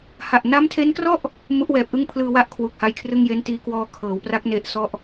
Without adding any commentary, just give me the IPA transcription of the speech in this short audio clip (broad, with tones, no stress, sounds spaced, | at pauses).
h a˨˩ ʔ n a˦˥ m tʰ e˦˥ n k r ɔ˥˩ ʔ | m u˦˥ ʔ w ɛː˨˩ p̚ ʔ ɯ˥˩ ŋ pʰ l ɯː˧ w a˦˥ ʔ kʰ w u˨˩ k̚ h a˧ j kʰ r ɯ˥˩ ŋ j e˦˥ n t iː˦˥ k w ɔː˦˥ kʰ ɤː˩˦ w p r a˦˥ k̚ n e˦˥ ʔ s ɔ˥˩ ʔ